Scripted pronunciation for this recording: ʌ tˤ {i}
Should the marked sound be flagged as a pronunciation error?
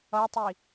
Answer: no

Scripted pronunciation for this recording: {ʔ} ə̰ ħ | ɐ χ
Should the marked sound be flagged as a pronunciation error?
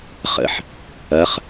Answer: yes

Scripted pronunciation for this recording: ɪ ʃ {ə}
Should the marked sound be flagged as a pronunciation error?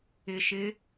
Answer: yes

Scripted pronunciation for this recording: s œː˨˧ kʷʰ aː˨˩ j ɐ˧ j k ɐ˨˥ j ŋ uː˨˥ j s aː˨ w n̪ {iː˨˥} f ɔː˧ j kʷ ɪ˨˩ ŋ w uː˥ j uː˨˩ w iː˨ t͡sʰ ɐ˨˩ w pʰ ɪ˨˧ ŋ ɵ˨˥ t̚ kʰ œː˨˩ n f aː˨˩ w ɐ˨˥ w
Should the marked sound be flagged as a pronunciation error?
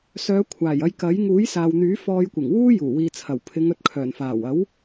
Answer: yes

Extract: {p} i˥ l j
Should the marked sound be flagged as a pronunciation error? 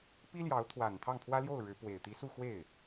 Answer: no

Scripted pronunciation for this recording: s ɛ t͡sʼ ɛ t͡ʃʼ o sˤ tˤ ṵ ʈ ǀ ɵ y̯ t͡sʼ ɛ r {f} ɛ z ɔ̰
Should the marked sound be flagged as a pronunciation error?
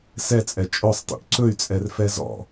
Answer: no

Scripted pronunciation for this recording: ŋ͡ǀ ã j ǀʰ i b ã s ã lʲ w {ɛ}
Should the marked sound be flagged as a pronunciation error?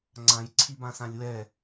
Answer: no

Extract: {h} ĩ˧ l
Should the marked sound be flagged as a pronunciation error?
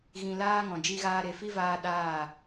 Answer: yes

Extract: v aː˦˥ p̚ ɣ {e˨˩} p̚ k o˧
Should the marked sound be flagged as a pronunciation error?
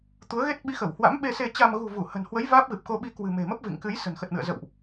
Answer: yes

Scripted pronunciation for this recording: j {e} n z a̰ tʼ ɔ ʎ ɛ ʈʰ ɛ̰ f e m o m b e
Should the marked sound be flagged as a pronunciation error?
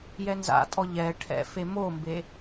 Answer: yes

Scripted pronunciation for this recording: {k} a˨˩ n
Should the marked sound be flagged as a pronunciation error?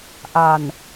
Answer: yes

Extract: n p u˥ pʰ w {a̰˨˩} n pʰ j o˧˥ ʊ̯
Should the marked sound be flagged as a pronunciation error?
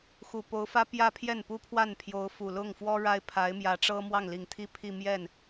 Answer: yes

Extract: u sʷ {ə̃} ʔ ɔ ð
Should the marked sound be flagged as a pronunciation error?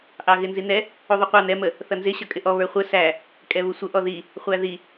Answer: yes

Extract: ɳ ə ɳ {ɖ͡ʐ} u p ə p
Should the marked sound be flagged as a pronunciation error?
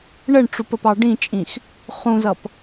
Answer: yes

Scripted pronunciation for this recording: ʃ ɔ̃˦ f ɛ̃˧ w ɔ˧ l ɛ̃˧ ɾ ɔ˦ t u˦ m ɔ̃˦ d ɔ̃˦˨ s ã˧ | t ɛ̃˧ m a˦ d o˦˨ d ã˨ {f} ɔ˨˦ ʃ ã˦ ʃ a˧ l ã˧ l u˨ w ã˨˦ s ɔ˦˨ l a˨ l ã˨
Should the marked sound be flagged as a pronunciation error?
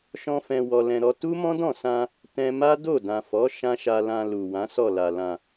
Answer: no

